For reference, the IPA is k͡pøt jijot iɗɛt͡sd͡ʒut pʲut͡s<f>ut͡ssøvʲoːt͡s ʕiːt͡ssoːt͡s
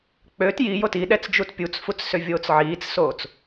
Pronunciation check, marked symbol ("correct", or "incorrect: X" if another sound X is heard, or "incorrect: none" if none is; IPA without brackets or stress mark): correct